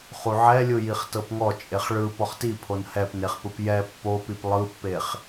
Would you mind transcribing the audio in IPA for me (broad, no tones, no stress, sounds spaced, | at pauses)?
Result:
χ u ʕ ɛ lʲ ɯ j i χ t ɤ p ŋ ɔ t͡ʃʼ e χ ɭ ɯ p ɔ χ t i pʰ o n h ɛ p n e χ p ɯ p j ɛ pː o p i p lˠ ɯ pː e χ